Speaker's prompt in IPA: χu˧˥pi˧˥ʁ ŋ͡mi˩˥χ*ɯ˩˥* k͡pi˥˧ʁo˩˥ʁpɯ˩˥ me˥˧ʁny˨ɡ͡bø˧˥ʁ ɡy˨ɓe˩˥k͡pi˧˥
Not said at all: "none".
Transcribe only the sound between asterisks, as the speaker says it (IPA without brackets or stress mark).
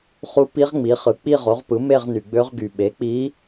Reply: ɯ˩˥